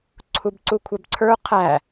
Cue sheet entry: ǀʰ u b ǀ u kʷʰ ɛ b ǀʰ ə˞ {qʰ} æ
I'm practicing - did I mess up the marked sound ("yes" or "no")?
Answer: no